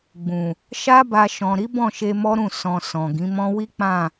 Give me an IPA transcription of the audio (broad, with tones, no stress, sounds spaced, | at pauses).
ɡ͡b ũ˨ | ʃ a˦ b a˧ ʃ ɔ̃˨ ɾ i˨˦ b ɔ̃˦˨ ʃ e˧ m ɔ˦ ɾ ũ˦˨ s ɔ̃˧ s ɔ̃˨ ɡ ĩ˨˦ m ɔ̃˦ w i˦ k͡p ã˦˨